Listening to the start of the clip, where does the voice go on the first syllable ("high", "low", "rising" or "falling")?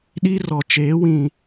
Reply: high